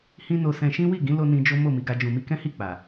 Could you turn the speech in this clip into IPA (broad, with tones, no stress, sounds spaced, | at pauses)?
h ĩ˦ n o˧ s ɛ̃˧ ʃ ĩ˦ w i˦˨ ɡ ĩ˨˦ l o˧ n ĩ˧ d͡ʒ o˦ m o˦˨ m i˧ ɡ a˧ d͡ʒ ũ˨ m i˧ k ɛ̃˦ h i˦˨ k͡p a˨